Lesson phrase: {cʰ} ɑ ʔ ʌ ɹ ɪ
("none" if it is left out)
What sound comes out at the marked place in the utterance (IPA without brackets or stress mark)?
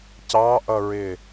c